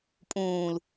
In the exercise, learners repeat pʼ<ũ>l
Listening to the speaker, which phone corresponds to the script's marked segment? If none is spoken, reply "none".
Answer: ũː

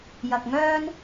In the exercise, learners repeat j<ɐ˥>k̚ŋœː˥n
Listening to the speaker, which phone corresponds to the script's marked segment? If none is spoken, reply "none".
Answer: ɐ˧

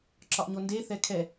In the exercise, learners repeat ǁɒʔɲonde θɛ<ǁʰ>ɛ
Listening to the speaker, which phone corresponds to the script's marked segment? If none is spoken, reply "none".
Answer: kʰ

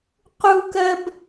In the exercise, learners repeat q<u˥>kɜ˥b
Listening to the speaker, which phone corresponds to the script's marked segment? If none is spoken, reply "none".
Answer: u˥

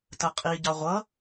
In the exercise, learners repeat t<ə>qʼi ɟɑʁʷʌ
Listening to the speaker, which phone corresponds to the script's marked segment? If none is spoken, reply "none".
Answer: ə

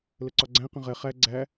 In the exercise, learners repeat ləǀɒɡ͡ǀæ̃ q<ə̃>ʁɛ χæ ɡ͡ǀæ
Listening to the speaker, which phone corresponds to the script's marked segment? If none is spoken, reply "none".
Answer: ə̃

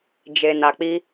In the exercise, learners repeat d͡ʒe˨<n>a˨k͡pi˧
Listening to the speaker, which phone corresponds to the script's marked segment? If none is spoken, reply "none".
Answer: n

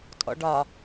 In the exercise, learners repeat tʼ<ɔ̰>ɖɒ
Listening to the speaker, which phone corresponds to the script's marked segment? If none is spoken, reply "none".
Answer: ɔ̰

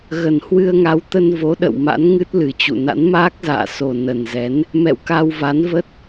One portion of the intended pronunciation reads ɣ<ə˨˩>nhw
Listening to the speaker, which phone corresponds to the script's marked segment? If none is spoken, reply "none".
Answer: ə˨˩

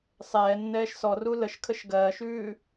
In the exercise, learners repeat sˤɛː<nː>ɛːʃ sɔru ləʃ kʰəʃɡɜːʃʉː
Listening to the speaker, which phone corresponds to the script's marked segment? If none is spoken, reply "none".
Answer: nː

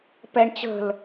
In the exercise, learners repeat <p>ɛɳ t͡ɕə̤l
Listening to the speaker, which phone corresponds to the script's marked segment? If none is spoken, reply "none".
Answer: p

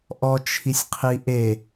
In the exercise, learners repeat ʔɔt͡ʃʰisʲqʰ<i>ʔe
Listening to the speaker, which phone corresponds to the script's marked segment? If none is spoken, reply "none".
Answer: i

